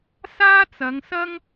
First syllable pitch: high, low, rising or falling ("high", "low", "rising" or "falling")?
high